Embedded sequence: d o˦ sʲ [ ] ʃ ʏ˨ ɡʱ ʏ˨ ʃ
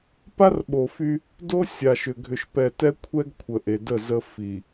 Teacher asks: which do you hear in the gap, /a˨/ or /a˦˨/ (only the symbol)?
a˨